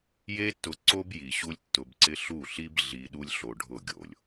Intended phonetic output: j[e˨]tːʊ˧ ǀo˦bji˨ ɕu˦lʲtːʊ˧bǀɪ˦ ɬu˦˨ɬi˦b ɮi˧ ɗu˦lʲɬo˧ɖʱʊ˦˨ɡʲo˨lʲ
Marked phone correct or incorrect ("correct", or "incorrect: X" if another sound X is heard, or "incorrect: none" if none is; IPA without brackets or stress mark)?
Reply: incorrect: e˦